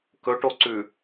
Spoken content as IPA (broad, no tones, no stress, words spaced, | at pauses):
kɵʈoǀʉ